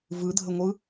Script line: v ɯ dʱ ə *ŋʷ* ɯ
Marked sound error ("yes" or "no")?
no